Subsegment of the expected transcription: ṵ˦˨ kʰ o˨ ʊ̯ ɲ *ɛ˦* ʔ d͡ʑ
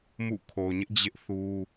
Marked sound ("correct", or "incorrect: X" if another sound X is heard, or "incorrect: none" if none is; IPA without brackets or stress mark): incorrect: ɪ˦